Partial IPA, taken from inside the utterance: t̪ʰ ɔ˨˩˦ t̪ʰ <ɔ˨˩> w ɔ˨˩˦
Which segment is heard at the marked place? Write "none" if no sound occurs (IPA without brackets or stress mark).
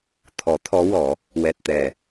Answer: ɔ˧˥